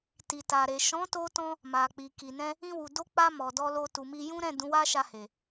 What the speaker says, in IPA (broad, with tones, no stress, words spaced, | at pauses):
ti˨ta˨ɾe˨ ʃɔ̃˨˦to˧tɔ̃˧ | ma˨k͡pi˨ki˨nɛ̃˧ | ĩ˧wu˨do˧k͡pa˧ mɔ˨dɔ˧lo˧ tu˨mi˧jũ˦ɾɛ̃˦˨ dũ˨˦wa˦ʃa˧he˨